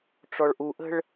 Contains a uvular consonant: no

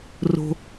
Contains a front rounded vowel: no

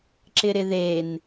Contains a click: yes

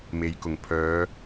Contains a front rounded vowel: yes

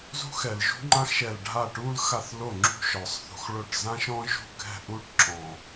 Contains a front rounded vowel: no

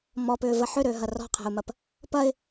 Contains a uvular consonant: yes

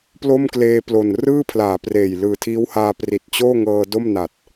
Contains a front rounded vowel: no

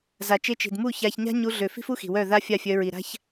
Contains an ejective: no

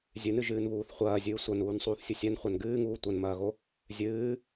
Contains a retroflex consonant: no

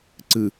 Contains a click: yes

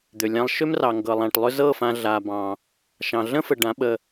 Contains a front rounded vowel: yes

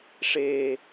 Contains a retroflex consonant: yes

